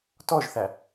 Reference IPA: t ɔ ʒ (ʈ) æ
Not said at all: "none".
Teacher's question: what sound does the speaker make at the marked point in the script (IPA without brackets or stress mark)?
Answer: θ